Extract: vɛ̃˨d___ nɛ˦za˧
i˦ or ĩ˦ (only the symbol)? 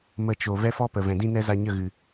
ĩ˦